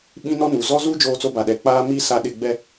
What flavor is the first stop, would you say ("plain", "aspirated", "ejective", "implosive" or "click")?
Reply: implosive